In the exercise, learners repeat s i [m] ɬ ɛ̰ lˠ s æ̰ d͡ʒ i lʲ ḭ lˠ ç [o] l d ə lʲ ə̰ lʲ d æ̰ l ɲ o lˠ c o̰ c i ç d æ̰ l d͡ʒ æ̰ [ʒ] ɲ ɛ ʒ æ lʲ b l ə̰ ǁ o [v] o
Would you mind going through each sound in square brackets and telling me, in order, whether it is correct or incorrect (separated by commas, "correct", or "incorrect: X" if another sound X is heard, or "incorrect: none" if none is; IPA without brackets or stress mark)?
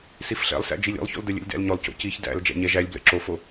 incorrect: f, incorrect: o̰, incorrect: none, incorrect: f